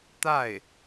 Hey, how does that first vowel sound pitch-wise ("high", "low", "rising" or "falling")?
falling